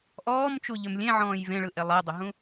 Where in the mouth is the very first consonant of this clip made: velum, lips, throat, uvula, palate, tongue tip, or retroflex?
throat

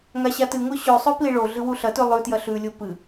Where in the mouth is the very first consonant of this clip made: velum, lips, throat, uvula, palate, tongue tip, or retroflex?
velum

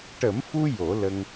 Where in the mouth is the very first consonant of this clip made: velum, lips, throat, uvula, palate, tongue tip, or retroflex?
retroflex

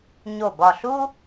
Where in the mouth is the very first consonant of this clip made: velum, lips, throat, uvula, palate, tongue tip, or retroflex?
palate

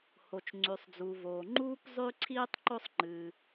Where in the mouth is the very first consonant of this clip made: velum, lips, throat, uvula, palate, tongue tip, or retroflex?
throat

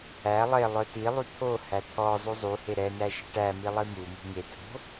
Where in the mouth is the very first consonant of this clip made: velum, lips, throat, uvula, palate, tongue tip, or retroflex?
tongue tip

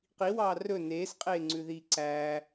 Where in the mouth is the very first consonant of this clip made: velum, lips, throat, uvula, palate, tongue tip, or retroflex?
uvula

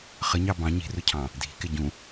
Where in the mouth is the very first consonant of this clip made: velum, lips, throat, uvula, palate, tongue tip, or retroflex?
uvula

